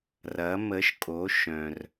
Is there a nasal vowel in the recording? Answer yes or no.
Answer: yes